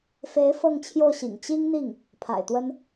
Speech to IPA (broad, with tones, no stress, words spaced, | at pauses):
fe˧˥ɪ̯ fɤ˥˧ŋt͡ɕʰjo˥˩ʊ̯ɕḭ˨˩ŋ t͡ɕi˥ŋn̪i˥˩ŋ | pʰa̰˨˩ɪ̯t̪wə˥n